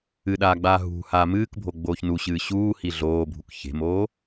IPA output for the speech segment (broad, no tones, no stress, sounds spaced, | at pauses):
ɨ ɗ aː ɡ͡b aː ɦ ṳ h aː m ɨː k bʱ o ɡ͡b oː ç n u ɕ ɨː ɕ uː h i ɮ oː bʱ u k ç e̤ m oː